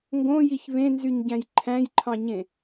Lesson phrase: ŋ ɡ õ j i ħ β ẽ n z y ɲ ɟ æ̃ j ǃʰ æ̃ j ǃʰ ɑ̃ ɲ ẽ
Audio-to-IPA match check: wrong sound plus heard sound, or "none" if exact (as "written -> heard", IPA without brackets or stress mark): ħ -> ç